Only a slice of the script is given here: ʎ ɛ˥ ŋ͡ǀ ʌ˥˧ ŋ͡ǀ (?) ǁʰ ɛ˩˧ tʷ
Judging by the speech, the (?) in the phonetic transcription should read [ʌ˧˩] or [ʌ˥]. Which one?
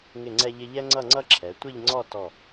ʌ˥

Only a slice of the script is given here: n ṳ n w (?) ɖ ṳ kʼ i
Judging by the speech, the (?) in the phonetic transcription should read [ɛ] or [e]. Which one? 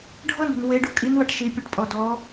e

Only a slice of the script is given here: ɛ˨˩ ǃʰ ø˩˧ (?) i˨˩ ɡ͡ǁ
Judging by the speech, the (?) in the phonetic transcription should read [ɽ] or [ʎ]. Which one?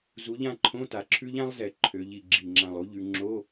ʎ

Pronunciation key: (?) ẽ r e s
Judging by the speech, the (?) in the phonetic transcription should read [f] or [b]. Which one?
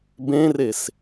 b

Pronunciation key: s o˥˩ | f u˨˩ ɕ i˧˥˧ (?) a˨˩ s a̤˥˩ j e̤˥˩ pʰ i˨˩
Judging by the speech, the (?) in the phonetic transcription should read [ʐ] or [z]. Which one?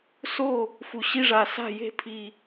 ʐ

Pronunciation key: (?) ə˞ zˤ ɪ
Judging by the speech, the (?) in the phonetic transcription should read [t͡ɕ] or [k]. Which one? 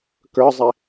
k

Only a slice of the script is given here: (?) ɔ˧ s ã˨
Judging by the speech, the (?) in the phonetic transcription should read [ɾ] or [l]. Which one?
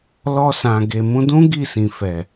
l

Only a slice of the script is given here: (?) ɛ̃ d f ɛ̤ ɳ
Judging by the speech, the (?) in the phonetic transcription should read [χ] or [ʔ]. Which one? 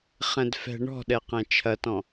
χ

